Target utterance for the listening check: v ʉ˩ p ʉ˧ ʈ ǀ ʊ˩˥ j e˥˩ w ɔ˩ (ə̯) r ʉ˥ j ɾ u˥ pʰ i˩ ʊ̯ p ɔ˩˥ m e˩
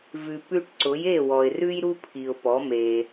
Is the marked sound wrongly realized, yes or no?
yes